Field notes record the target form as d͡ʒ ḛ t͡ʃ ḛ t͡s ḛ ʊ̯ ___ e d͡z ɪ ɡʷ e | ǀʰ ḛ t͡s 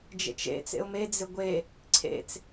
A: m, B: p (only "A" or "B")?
A